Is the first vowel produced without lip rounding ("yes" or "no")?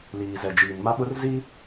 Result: yes